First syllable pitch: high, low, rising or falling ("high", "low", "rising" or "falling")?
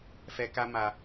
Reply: high